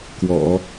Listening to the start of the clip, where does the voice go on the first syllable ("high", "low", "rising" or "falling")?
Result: low